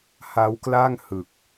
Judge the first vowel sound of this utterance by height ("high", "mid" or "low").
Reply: low